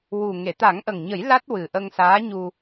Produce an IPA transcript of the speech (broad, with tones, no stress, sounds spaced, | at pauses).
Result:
w u˨˩ ŋ e˨˩˨ t̪ a˨˩˦ ŋ ʔ ə˨˩ ŋ ɲ ə˨˩˦ j l a˦˥ t̚ w ɨ˨˩ ʔ ə˧ ŋ s aː˧˥ ɲ u˧